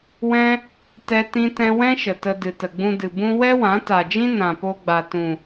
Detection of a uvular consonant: absent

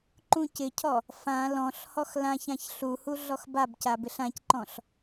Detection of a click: present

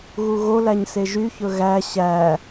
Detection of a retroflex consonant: absent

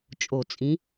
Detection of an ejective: present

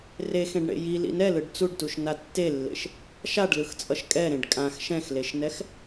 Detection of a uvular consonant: absent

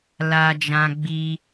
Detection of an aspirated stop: absent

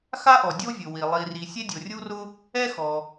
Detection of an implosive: absent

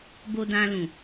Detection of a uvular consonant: absent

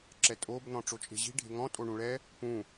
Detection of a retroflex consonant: present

